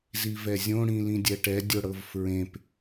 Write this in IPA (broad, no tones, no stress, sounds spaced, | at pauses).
z i v ɛ zʲ õ ɽ ĩ l ĩ dʲ ɛ ʈ ɛ dʲ o ɽ ɤ v f ɹ ẽ p